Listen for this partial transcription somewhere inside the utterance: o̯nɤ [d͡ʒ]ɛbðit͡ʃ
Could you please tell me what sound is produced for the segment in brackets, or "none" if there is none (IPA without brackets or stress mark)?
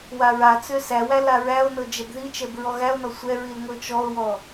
d͡ʒ